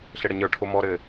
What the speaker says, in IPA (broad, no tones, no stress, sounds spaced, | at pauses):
ɬ ɘ ɽ ə ɲ ə˞ ʈʰ o m ɔ ɾ ɘː